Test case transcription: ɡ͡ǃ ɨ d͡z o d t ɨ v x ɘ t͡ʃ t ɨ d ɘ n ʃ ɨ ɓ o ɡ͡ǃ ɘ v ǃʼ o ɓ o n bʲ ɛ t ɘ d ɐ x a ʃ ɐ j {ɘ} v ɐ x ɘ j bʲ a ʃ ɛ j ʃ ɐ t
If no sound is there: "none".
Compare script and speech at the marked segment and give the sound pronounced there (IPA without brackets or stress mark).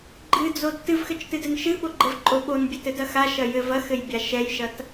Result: ɘ